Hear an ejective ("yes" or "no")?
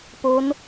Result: no